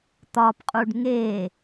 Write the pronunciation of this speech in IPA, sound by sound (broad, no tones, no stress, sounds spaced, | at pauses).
t̪ ɒ p qʼ u ɖ ŋ e